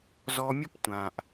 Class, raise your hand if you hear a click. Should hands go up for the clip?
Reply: no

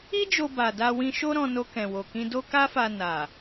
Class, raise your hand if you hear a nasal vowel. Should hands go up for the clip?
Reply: yes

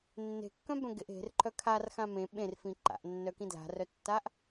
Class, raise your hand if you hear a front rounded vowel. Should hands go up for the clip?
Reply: yes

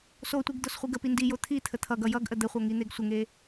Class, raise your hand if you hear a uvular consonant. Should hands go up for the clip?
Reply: yes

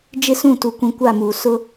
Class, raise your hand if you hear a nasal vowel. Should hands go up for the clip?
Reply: yes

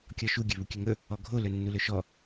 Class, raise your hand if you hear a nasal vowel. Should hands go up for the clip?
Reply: no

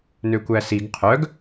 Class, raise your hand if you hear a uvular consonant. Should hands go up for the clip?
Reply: yes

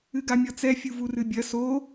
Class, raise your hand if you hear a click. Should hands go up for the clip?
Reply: no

